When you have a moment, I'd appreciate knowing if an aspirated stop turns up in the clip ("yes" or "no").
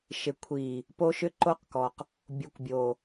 yes